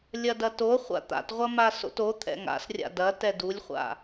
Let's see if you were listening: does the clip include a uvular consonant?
yes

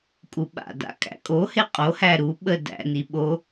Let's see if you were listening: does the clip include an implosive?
yes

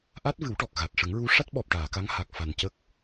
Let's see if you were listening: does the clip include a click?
no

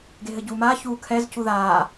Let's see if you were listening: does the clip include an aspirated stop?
yes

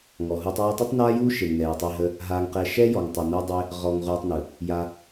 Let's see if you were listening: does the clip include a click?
no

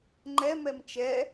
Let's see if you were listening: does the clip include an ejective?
no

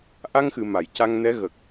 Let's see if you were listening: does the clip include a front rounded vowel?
no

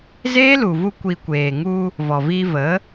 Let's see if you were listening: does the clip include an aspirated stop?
no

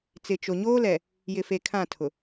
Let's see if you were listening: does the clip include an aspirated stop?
yes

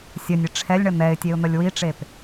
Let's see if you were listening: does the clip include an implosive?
no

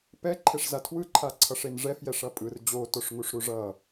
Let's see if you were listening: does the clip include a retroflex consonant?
yes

